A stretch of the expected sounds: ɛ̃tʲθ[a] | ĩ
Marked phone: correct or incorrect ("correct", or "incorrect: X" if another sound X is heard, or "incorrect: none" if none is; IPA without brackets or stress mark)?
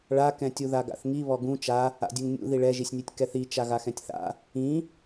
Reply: incorrect: a̰